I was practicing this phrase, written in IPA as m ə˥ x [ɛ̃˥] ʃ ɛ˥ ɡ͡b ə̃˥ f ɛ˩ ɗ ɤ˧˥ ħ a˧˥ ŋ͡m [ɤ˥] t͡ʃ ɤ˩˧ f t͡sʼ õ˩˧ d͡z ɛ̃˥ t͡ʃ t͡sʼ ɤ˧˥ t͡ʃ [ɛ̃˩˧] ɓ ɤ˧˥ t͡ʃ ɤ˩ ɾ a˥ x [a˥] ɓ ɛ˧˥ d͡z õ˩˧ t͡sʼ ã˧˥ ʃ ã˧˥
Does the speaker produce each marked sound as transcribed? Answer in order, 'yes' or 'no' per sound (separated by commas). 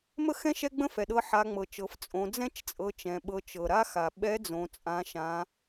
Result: yes, no, yes, no